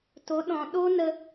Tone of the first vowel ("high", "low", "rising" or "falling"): rising